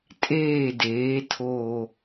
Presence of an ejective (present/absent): present